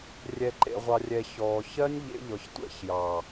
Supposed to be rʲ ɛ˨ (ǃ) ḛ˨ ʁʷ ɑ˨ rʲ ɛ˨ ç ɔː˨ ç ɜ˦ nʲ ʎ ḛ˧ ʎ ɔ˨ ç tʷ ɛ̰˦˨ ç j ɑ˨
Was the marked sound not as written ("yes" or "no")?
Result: no